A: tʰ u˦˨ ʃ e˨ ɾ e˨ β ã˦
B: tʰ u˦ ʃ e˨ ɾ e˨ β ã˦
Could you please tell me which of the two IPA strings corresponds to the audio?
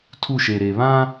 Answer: A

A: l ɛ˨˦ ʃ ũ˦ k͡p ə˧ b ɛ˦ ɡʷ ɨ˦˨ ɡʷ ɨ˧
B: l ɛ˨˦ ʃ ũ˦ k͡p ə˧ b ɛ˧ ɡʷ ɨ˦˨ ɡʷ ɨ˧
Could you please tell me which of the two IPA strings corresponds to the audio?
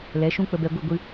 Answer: B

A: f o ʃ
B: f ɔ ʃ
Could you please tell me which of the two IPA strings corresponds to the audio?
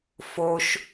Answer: A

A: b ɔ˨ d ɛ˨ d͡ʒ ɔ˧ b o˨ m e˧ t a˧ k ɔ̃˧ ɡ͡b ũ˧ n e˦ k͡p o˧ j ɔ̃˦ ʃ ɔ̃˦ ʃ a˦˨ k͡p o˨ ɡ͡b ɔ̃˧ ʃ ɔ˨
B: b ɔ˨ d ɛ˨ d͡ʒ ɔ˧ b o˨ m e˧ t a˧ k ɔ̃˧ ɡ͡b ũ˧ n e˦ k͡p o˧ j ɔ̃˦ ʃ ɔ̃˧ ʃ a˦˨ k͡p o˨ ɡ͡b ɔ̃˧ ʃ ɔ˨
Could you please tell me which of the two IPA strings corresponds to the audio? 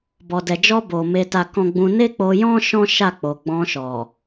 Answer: A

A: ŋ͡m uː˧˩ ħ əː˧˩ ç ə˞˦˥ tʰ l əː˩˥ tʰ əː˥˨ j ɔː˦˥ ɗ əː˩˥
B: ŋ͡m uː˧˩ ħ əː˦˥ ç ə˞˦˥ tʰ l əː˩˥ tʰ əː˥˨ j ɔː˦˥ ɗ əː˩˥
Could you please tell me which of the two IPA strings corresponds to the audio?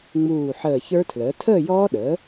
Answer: A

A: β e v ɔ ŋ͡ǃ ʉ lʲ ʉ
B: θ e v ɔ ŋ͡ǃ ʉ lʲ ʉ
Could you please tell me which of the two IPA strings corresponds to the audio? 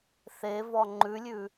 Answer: B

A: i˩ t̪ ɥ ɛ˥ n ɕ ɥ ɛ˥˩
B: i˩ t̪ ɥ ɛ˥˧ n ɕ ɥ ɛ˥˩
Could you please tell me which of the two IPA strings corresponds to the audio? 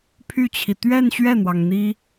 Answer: B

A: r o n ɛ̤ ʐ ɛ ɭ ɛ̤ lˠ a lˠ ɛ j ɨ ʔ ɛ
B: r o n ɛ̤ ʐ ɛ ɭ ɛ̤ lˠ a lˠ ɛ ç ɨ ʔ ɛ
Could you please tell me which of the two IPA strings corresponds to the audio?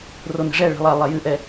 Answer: A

